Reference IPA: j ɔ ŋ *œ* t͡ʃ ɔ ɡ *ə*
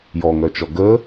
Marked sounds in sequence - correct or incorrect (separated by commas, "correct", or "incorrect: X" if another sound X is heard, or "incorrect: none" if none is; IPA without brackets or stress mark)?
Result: correct, correct